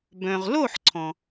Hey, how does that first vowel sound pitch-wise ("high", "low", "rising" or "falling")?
low